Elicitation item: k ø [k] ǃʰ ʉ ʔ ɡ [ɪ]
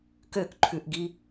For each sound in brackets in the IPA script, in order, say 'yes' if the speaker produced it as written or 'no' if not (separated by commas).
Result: yes, no